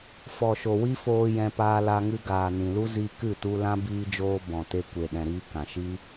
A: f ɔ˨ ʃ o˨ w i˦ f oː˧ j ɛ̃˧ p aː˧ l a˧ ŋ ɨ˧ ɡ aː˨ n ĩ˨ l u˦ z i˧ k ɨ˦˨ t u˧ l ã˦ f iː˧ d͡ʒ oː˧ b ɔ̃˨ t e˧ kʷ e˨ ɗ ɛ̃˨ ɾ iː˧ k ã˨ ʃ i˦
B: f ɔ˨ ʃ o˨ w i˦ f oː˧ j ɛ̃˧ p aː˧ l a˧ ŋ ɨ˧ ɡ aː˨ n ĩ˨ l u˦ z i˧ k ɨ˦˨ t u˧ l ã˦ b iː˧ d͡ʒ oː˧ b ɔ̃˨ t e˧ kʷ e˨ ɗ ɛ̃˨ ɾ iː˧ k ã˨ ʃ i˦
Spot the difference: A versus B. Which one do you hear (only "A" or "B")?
B